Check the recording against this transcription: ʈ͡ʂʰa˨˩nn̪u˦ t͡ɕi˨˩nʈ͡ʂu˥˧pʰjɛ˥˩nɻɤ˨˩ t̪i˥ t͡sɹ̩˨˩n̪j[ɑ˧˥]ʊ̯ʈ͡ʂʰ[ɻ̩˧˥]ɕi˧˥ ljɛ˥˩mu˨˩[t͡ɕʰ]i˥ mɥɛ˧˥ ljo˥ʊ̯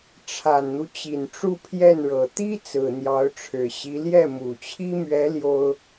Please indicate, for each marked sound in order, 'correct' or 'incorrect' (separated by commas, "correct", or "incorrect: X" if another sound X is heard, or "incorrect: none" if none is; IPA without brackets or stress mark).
correct, incorrect: ɻ̩˨˩, correct